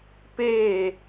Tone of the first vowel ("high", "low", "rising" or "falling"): falling